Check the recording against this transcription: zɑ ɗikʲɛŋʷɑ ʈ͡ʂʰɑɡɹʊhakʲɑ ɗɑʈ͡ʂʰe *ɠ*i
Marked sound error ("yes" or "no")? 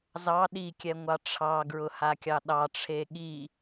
no